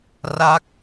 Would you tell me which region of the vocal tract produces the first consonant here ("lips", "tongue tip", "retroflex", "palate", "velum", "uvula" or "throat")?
tongue tip